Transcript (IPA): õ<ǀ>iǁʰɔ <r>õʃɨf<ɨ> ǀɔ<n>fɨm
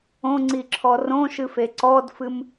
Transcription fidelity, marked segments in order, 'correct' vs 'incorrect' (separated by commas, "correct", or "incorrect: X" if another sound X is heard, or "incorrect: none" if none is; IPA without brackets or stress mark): incorrect: ŋ͡ǀ, correct, incorrect: e, incorrect: d